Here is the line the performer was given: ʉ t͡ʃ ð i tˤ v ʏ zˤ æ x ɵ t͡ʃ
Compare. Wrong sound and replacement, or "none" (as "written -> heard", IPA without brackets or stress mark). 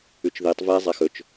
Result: ʏ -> ɛ